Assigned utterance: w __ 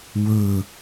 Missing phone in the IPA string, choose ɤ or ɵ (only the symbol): ɵ